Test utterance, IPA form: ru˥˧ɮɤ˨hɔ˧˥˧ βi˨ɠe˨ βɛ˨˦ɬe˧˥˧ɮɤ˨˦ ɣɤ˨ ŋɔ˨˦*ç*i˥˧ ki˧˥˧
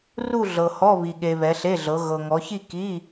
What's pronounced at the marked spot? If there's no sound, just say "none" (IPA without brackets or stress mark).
ç